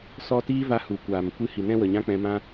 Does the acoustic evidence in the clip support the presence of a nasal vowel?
yes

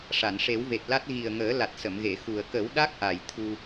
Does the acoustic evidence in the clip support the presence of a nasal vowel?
no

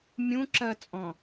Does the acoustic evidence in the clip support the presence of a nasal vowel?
yes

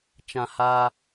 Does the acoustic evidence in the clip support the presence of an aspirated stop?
no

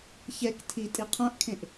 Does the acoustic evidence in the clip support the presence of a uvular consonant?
yes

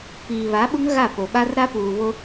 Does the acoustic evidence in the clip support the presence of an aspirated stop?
no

